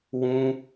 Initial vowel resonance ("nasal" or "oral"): nasal